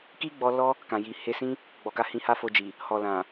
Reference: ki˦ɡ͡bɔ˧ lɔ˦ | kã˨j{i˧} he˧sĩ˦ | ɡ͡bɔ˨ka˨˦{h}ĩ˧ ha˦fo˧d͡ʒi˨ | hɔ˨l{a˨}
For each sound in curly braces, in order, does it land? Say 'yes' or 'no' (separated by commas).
no, yes, no